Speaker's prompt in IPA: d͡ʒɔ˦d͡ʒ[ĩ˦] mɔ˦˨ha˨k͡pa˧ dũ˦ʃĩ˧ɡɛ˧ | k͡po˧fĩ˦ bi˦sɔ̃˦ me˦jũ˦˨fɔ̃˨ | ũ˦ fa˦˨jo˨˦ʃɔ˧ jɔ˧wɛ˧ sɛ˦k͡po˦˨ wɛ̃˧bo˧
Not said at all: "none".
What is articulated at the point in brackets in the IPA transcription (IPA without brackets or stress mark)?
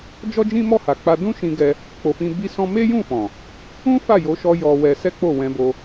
ĩ˦